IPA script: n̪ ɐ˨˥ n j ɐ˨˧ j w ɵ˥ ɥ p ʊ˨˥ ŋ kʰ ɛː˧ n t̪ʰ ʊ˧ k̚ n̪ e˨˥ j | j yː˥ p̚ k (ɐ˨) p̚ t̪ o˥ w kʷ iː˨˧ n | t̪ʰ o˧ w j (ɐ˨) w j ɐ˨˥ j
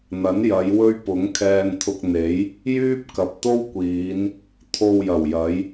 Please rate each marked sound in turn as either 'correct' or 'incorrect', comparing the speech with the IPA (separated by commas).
correct, incorrect